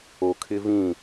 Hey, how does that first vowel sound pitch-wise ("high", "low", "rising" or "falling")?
low